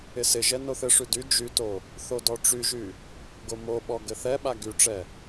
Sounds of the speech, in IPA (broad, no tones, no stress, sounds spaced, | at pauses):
ɪ s ɪ ʒ ɛ n o θ ɘ ʂ y d y d͡ʒ y t o | θ o d ɔ ʈ͡ʂ y ʒ y | ɡ o m o ɓ ɔ ɡ ɘ θ ɛ ɓ a ɡ y ʈ͡ʂ ɛ